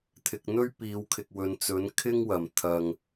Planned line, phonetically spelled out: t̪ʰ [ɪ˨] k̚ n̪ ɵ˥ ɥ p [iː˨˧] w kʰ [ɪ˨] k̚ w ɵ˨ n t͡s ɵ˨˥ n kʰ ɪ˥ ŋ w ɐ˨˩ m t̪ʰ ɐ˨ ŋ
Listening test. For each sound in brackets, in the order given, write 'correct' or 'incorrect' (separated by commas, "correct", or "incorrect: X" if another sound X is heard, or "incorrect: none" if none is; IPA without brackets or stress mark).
correct, correct, correct